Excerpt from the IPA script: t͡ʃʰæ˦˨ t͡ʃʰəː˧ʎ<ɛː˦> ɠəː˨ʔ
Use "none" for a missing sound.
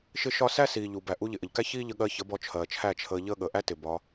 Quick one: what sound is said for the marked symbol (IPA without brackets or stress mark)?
əː˦